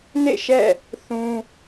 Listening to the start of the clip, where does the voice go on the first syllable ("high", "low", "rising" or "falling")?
falling